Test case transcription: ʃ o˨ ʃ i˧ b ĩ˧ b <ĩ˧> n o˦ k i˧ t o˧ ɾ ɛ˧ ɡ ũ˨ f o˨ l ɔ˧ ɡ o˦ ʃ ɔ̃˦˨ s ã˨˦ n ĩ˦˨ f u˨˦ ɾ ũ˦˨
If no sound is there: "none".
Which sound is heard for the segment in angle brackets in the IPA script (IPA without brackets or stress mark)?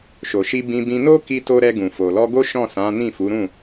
ĩ˧